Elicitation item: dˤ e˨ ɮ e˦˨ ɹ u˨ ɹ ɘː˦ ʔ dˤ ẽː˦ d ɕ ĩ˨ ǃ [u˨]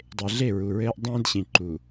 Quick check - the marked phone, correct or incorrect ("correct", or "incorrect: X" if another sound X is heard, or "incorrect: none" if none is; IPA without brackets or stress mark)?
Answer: correct